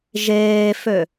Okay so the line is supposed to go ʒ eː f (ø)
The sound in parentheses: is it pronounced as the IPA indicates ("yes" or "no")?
yes